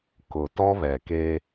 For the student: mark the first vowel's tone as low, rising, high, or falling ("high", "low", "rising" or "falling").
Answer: low